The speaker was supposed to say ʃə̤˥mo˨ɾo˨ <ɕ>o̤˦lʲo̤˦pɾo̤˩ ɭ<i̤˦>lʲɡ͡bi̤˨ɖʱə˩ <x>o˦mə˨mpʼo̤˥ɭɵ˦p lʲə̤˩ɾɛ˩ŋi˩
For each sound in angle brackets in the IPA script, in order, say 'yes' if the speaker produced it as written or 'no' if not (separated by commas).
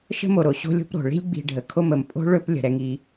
yes, yes, no